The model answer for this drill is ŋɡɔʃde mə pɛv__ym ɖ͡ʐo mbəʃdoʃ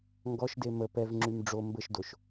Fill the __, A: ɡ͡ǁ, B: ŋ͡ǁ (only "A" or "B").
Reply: B